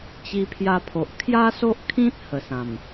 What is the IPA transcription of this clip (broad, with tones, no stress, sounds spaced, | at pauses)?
t͡ɕ i˧ pʰ j a˧ pʰ o˨ ʔ kʰ j a˦ s o˦ ʔ kʰ ĩ˦ t̚ h ə˨˩ s ã˨˩ m